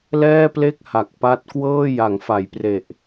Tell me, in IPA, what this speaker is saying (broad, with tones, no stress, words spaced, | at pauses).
lɛː˥˩ple˥˩k̚ha˨˩k̚ pa˦˥t̚kwɤː˥˩ ja˩˦ŋfa˩˦j pre˨˩ʔ